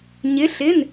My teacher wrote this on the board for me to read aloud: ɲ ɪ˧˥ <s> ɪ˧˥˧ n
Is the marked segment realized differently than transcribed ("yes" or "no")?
yes